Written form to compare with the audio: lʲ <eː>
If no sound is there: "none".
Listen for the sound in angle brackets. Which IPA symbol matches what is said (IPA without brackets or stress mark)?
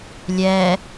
ɛː